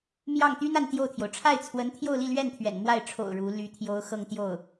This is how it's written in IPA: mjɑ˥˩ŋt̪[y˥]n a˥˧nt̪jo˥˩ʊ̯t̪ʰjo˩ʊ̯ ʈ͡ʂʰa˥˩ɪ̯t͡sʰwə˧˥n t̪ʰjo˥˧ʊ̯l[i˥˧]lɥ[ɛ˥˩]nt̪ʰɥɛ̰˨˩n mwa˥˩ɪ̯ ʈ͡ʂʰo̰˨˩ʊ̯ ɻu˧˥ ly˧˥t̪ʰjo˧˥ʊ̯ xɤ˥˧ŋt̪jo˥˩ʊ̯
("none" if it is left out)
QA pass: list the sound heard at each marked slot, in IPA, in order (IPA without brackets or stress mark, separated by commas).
y˥, i˥˧, ɛ˥˩